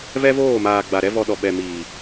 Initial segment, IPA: v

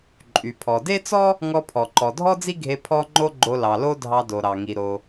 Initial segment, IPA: ǃʼ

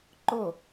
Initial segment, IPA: ǃ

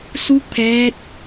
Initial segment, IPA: s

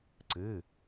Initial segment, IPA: ǀ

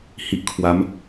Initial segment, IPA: h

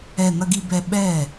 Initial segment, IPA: ɛ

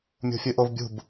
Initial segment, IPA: mʲ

